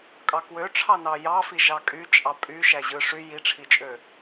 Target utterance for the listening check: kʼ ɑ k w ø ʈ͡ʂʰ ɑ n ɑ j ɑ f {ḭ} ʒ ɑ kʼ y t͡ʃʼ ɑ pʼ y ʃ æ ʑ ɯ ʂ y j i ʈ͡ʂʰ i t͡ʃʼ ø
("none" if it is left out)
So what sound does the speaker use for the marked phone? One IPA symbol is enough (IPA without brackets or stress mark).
i